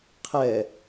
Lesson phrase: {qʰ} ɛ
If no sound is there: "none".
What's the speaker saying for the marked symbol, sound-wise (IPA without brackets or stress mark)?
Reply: qʰ